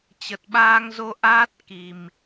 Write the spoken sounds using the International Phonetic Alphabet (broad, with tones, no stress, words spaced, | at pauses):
t͡ɕə˨˩t̚ɓaː˧ŋ zo˧ ʔaː˦˥t̚ ki˨˩m